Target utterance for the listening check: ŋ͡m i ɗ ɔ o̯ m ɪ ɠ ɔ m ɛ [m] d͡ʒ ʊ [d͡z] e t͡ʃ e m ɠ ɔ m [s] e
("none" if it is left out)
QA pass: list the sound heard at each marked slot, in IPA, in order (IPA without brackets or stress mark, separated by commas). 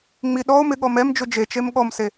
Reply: m, d͡ʒ, s